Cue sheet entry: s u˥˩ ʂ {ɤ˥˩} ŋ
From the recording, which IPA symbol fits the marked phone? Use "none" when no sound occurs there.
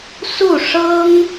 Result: ɤ˥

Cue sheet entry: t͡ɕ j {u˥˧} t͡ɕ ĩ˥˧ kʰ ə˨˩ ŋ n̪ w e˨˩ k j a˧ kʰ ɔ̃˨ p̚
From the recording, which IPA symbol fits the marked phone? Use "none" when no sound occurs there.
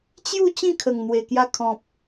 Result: u˥˧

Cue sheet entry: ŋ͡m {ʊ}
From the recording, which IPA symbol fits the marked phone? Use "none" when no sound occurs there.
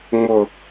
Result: ʊ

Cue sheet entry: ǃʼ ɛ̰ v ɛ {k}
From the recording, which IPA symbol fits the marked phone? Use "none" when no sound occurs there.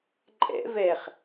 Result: χ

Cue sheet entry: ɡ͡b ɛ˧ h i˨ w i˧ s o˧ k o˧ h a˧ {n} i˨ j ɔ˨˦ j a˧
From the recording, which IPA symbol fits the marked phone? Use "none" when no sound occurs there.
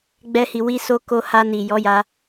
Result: n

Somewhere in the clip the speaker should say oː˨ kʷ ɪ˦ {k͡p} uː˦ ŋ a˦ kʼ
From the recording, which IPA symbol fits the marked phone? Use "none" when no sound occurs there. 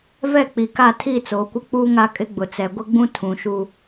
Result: k͡p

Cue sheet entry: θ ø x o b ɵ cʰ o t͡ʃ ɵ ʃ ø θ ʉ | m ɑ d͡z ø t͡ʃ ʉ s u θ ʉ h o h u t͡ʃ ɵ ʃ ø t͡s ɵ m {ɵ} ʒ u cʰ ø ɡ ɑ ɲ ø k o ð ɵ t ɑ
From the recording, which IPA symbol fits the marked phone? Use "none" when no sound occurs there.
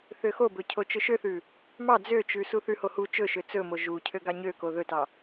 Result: o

